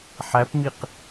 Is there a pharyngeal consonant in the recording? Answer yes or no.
yes